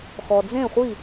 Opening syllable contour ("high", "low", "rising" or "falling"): low